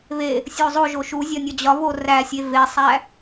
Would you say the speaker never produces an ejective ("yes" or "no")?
yes